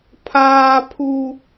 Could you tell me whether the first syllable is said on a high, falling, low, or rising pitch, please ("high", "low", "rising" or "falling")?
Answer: high